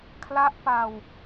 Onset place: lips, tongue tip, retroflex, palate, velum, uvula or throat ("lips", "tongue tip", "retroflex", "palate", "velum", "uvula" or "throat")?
velum